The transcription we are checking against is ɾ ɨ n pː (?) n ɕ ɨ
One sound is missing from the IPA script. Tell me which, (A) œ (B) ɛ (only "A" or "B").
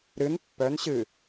A